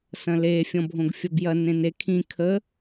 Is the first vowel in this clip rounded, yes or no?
no